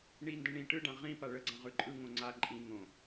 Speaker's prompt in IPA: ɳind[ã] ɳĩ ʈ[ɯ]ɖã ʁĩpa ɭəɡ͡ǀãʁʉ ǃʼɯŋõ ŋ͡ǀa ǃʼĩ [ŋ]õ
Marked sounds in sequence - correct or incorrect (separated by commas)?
incorrect, correct, correct